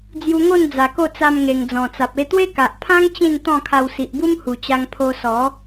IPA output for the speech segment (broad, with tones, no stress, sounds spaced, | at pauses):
d͡z j u˧ ŋ o˥˧ n d͡z a˨˩ k o˥˧ t͡s a˧ m ŋ e˨˩ ŋ d͡z ɔ̃˨˩ t͡s a˨ p̚ e˧ t̪ w e˦ k a˨ ʔ pʰ ã˦ ŋ t͡ɕ ĩ˥˧ n t̪ ɔ̃˥˧ kʰ a˧ w s i˨ ʔ b u˦ m h u˨˩ t͡ɕ a˧ ŋ pʰ o˧ s ɔ˨˦